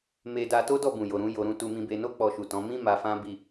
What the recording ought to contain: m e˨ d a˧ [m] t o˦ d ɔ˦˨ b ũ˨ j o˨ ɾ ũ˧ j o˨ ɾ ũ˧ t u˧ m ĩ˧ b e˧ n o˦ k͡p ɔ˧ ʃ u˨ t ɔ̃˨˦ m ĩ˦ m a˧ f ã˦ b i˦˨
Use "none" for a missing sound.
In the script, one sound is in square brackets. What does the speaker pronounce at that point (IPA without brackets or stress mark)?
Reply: none